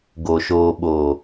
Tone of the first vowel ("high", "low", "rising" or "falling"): low